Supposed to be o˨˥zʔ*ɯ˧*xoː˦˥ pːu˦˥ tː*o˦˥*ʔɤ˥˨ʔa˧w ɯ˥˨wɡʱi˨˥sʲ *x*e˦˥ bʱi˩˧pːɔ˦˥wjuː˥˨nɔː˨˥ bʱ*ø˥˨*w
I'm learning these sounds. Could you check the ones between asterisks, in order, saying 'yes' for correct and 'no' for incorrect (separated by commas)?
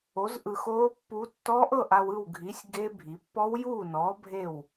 yes, no, no, no